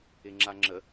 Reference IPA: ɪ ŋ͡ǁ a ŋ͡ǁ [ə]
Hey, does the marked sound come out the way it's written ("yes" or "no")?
yes